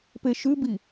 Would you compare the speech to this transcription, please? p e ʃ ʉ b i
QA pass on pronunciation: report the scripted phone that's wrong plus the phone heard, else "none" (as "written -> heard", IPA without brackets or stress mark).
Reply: none